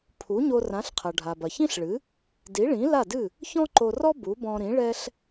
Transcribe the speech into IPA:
pʰ u˩˥ ɲ o˧ r ã˩˥ ɬ qʰ ɐ˩ ɖʱ a˩ b ɐ˩ ç ĩ˥ ɬ ɭ ɨ˩˥ | d i˩˥ ɭ ĩ˩˥ l a˥˩ d ɨ˥˩ | ç ɔ̃˥ ǃ o˧ r ɔ˥ b u˩˥ b ɔ̃˧ ɾ ĩ˩˥ ɭ ɛ˥ ɬ

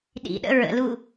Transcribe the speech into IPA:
ɗ ḭ ɗ ə̰ ɹ ə̰ l u

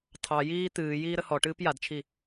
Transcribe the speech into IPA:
tʰ ɑ j iː t̪ ɨː j iː ɾ ə h ɔ ʈ ɨː p j a d t͡ʃʰ i

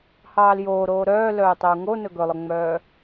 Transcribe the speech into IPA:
h ɑː l j oː ɾ oː ɾ œː l œː tˤ œ u̯ ŋ o n ɵ ɡ ɵ lˠ ɵ ŋ͡m œː

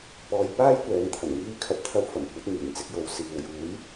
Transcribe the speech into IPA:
p ɔː˧ j p aː˥ j kʷ ɛː˨˧ ŋ t̪ʰ ɐ˨˩ n ŋ iː˧ kʰ ɐ˨˥ p̚ t̪ʰ ɐ˧ w f ɐ˨˩ m kʷ ɐ˨˥ t̚ ŋ iː˨˩ n t͡s ɪ˧ k̚ j o˨˧ w s iː˨ w j uː˨˥ j

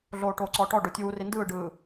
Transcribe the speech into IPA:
ɮ oː ʈ oː ǀ ɔː ʈ ɔ ɖ o tʲ uː r i n d ɯː ɖ ɯː

